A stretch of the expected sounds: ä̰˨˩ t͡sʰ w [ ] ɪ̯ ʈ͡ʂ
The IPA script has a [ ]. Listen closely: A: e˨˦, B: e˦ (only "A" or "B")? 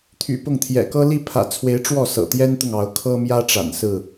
A